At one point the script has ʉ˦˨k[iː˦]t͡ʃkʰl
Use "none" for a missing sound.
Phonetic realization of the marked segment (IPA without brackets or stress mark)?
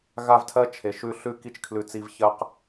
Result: i˦